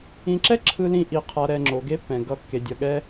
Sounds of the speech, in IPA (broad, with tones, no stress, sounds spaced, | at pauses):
ĩ˨ ǁ ɛ˦ ǁʰ ɯ˦ l ĩ˦ ʔ i˨ qʰ a˨ ɾ ɛ˨ ŋ͡ǁ o˨ ɡ e˦ pː ɛ̃˨ ɡ ʌ˨ kː e˨ dʲ ʌ˨ ɠ ɛ˦